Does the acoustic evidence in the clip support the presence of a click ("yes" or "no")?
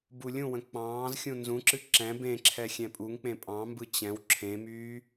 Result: yes